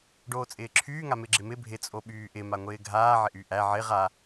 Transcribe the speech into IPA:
ɖ oː t͡sʼ ɪː ǁʰ yː ŋ a m ɪ ɡ͡ǁ ɪ m ɪ bʱ ɪ t͡sʼ o ɓ yː ʔ ɪ m a ŋʷ ɪː ɡʱ aː ʕ ɪ ʔ y ʔ æ ʕ ɪ ʁ a

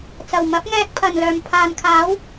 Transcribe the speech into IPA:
t͡s ɐ˨˩ w m ɐ˨˥ p̚ ŋ ɛː˧ k̚ pʰ ɐ˨˩ n l œː˨˩ m pʰ aː˨ n kʰ aː˨˥ w

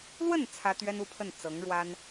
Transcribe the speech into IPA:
l w ə˥˩ n t͡sʰ ä˥ t̪ ɥ ɛ˥ n u˥˧ pʰ ə˥˩ n t͡s ɤ˧˥ ŋ ɻ w a˥ n

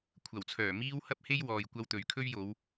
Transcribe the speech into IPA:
kʷʰ ɐ˨˩ w t͡sʰ œː˨˩ m iː˥ w h ɐ˥ p̚ h e˥ j w ɔː˧ j kʷ ɐ˥ w t̪ ɵ˨˧ ɥ kʰ ɵ˥ ɥ j o˨˧ w

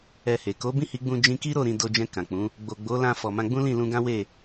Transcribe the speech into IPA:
ɛ˧ h e˨ k o˨˦ b ĩ˦˨ h i˨˦ ɡ͡b ũ˧ d͡ʒ ĩ˧ k i˦ ɾ o˦˨ ɾ ĩ˧ d o˧ d͡ʒ ɛ̃˧ k ã˨ k͡p ũ˨˦ | ɡ͡b o˨ ɡ͡b o˨˦ l ã˧ f ɔ˨ m ã˧ ɡ͡b ũ˦ l ĩ˦˨ l ũ˧ ɡ ã˦ w e˦˨

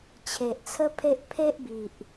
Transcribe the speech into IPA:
t͡ɕʰ e˨ ʔ t͡sʰ ə˦ pʰ e˦ ʔ pʰ e˦ ʔ b i˨ ʔ

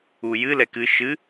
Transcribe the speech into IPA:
u j ɨ l ɛ k ɨ ʃ ɨ

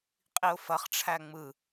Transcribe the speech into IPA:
qʼ i ʊ̯ f ɐ χ ʈ͡ʂʰ æ ŋ͡m ɯ

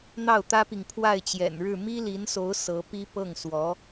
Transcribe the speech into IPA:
n̪ ɑ˥˩ ʊ̯ t̪ ä˥ p i˨ ŋ pʰ w a˥˩ ɪ̯ t͡ɕ j ɛ̰˨˩ n ɻ ɻ̩˥˩ m i˥ l i˧˥ n s o˧˥ ʊ̯ s ɤ˧˥ p i˥ p ɤ˥˩ ŋ s w ɔ˧˥

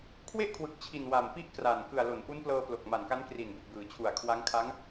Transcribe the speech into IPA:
kʰ w e˥˩ ʔ kʰ w ɯ˨˩ k̚ t͡ɕʰ i˨˩ n w a˨˩ m p i˥˩ ʔ k r a˨˩ n k ɯ˨˩ a̯ l o˩˦ n ʔ u˦˥ n p l ɤː˧ p l o˨˩ k̚ m a˨˩ n k a˦˥ n k r i˨˩ n b u˨˩ ʔ b ɯː˩˦ t͡ɕʰ u˨˩ a̯ kʰ w a˦˥ ŋ kʰ a˦˥ ŋ

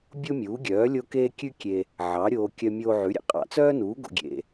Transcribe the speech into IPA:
bʲ o˥ mʲ uː˩˥ ɡʲ œː˩˥ lʲ o˥ k eː˥ kʲ ʉ˥ kʲ e˧ | ʕ ɑ˩˥ ɾʲ oː˧ kʲ œ˧ mʲ oː˧ ʕ ʉ˩˥ ɾʲ ḛ˧ qʼ ɑ̰˧ t͡s œː˥ n uː˩˥ ɡ o̰˧ ɡʲ ḛ˧

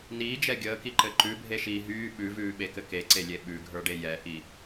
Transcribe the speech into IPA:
n iː d͡ʒ ɛ ɡʲ əː k i ǃ ɘ ǃ ʉ bʱ e ʃ iː ɦ yː ɓ ʉ v ʉː ɓ e k ɘ k e ǀ e lʲ e ɓ ʉ ɡʱ ə˞ ɖ e j ɛ ʔ i

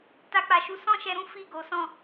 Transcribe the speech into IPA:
t a˦ k͡p a˧ ʃ u˦ s ɔ̃˦ ʃ ɛ˧ ɾ ũ˦ f i˦˨ ɡ o˨˦ s ɔ̃˦˨

